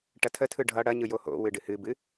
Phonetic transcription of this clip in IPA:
ʈ ɐ tʰ ə tʰ ɯ ɖʱ ʌ ɽ ɐ ɲ ɯ j o h o̰ w ɨ ɖ ɨ h ɨ b ɨ

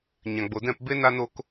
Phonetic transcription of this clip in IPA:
ɲ ã˨ ɡ͡b o˨ d ɛ̃˦˨ p b e˧ n a˦ n o˦ k

